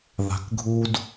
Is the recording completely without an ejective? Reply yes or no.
yes